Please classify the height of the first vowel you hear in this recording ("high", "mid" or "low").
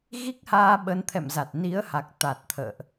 high